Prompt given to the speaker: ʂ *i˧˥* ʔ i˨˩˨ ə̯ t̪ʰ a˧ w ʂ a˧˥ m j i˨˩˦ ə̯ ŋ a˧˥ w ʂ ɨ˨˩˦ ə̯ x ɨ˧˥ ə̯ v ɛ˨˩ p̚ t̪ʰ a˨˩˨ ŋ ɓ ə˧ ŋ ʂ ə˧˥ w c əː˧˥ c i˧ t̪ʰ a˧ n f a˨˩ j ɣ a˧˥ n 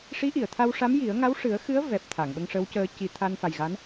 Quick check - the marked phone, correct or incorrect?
correct